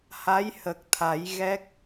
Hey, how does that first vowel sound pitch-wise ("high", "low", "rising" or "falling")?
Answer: rising